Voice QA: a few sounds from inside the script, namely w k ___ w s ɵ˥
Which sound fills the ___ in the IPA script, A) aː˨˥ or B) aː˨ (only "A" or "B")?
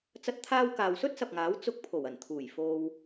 B